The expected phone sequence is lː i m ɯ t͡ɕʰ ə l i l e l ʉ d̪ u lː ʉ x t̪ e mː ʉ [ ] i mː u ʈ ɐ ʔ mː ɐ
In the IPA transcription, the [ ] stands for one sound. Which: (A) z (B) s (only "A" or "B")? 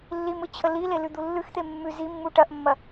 A